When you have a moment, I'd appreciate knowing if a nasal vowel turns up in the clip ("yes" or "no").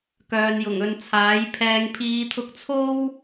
no